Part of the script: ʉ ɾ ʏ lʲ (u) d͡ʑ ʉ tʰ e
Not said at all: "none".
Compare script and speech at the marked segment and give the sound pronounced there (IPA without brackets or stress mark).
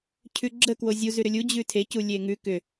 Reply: u